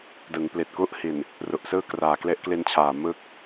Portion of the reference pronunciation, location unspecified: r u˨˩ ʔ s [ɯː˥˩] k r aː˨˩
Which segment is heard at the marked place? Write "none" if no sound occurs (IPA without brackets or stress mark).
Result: ɯː˥˩